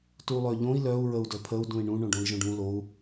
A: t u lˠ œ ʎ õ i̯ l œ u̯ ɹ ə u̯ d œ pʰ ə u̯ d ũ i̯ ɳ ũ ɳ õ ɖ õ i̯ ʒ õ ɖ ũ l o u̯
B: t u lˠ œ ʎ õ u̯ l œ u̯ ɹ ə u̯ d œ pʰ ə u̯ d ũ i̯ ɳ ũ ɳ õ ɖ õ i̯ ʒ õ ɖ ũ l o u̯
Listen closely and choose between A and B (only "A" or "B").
A